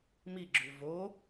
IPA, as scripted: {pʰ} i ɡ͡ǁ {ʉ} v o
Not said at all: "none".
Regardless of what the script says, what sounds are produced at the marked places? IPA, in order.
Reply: m, ʉ

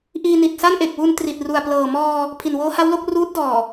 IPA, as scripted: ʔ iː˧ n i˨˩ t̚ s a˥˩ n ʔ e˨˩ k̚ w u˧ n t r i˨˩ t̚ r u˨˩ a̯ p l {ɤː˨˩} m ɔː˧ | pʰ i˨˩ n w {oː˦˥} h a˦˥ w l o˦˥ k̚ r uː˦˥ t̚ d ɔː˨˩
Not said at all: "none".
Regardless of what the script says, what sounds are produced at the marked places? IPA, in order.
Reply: ɤː˨˩, oː˦˥

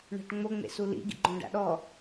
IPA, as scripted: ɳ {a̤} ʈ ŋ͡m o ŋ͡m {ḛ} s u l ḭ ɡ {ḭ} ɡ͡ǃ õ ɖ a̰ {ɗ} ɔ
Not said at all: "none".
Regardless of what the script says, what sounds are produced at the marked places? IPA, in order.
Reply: a̤, ḛ, ḭ, ɗ

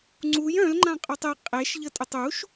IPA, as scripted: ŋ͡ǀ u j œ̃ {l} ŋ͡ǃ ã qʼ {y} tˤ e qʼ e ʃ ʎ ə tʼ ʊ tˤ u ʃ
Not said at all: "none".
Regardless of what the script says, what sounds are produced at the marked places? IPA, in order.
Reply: l, y

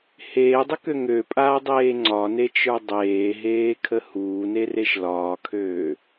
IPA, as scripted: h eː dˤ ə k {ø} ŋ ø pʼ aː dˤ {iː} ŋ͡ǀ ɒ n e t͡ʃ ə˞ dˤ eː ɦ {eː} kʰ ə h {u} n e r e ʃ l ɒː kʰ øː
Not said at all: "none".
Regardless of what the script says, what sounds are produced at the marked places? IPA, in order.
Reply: ø, eː, eː, uː

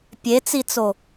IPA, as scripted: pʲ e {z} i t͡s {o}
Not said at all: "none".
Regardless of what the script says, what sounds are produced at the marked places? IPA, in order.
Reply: t͡s, o

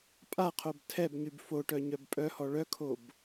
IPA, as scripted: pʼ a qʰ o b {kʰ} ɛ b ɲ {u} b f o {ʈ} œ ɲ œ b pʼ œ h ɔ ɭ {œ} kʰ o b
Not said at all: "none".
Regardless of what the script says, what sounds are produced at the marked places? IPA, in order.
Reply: tʰ, y, ʈ, œ

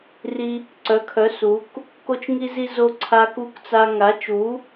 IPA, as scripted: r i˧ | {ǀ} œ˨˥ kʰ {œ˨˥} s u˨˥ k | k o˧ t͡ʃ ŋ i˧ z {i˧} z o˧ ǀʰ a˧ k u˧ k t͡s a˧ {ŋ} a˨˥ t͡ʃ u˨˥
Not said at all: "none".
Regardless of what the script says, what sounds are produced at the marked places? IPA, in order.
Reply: ǀ, œ˨˥, i˧, ŋ

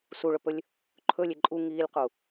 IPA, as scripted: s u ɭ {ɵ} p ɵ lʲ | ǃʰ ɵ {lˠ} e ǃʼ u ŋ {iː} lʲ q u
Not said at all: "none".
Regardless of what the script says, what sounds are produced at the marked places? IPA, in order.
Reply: ɵ, lʲ, iː

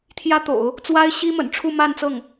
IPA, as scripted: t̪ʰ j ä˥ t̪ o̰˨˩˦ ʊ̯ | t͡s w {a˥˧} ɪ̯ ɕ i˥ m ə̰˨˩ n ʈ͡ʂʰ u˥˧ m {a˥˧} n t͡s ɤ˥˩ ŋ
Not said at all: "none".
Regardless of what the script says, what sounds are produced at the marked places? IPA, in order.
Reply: a˥, a˥˧

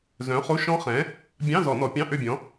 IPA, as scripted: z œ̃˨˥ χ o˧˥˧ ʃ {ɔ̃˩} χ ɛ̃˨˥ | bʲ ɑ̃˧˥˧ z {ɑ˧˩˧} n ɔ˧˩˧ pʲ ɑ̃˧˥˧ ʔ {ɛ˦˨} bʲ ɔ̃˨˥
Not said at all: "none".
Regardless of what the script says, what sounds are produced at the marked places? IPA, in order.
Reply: ɔ̃˦˥, ɔ˧˩˧, ø˦˨

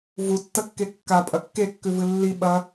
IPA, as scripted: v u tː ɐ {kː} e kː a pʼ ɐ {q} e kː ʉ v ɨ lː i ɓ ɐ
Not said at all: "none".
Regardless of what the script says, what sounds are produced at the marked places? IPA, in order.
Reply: kː, kː

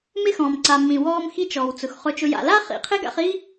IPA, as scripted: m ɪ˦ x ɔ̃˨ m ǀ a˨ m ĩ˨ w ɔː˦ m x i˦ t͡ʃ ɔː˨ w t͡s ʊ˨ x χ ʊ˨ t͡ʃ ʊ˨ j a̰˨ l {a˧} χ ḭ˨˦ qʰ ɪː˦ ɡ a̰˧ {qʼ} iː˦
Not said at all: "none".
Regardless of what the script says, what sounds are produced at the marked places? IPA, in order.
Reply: a˦, χ

